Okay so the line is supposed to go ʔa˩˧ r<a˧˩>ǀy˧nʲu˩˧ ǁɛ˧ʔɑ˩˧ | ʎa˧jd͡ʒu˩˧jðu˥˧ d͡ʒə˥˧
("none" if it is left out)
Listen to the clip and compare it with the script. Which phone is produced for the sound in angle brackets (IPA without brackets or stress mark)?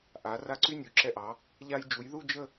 a˧˩